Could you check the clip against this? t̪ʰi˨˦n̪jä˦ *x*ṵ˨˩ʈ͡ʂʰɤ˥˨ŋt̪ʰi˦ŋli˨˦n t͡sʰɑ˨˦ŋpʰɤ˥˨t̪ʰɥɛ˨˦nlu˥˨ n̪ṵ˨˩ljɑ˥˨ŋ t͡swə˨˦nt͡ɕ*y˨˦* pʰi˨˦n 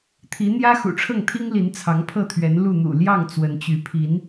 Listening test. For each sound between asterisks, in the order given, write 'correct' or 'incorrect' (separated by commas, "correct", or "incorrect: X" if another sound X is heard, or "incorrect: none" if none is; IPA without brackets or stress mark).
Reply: correct, correct